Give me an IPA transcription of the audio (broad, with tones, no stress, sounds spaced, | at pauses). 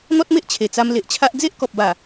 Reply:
n̪ ɔ˦ t̚ m e˦ ʔ t͡ɕʰ e˨˩ t͡s a˧ m l e˨ ʔ t͡ɕʰ a˦ ʔ d͡z e˦ ʔ k ɔ˨ p̚ b a˨˩